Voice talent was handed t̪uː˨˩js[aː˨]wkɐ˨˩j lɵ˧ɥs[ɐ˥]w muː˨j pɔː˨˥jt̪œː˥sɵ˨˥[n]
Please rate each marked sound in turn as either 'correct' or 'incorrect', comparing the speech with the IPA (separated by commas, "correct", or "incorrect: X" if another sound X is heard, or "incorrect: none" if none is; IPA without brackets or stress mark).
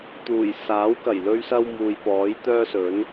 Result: incorrect: aː˨˥, incorrect: ɐ˧, correct